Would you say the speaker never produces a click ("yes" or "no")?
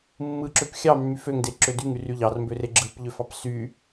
no